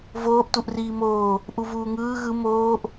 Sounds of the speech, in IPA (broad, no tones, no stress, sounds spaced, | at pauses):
v oː ʔ t u ʔ r iː m oː | ʔ u v uː ŋ ɯː ɣ ɯ m oː ʔ